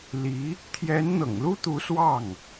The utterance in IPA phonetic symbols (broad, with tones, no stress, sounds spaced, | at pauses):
l i˧˥ | t̪ʰ j ɛ˧˥ n n̪ ɤ̰˨˩ ŋ l u˥ t̪ u˧˥ s w ɑ˥˩ ŋ